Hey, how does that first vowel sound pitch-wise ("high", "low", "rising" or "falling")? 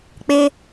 high